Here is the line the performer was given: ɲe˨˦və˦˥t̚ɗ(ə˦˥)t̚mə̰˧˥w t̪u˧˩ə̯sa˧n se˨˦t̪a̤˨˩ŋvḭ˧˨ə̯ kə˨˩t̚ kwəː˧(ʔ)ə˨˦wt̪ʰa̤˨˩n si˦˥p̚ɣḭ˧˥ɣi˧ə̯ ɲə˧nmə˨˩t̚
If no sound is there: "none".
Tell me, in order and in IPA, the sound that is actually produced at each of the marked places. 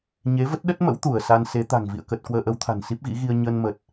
ə˦˥, ʔ

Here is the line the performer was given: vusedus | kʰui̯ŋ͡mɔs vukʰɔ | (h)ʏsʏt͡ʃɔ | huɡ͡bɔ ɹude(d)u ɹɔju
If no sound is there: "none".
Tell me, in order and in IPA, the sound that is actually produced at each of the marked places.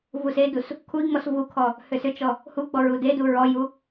h, d

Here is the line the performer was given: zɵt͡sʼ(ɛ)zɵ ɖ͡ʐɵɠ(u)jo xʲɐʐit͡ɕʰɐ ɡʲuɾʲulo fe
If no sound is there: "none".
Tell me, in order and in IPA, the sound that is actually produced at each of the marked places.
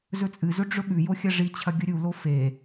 ɨ, ʉ

